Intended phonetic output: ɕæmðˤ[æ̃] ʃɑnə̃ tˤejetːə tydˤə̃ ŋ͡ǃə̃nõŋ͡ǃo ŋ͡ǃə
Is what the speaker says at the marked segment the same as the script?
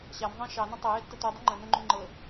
yes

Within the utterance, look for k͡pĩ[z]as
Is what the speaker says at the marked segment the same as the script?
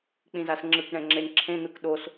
yes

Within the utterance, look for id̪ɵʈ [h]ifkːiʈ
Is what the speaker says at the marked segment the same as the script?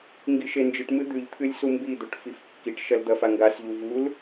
no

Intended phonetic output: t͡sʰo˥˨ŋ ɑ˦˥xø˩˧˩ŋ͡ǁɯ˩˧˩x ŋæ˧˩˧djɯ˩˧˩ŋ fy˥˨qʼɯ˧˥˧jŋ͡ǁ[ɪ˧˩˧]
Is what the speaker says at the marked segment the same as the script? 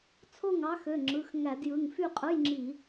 no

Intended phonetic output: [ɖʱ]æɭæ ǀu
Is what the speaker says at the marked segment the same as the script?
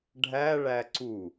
yes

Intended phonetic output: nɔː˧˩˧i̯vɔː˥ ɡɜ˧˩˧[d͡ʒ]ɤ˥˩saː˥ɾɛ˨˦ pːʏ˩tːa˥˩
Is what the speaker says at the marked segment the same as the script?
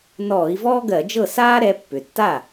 yes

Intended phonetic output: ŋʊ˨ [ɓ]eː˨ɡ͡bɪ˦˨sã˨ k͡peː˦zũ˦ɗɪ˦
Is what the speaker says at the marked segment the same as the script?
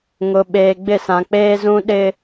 yes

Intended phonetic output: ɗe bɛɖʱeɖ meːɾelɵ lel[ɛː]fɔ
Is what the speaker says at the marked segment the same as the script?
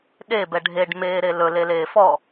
no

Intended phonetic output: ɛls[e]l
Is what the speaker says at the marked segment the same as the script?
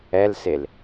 yes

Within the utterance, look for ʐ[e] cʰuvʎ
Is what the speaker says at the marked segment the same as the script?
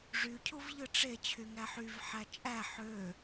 no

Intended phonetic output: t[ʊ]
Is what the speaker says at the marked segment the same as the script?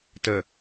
no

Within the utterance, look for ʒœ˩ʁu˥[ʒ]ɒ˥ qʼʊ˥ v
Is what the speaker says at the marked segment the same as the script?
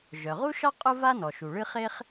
no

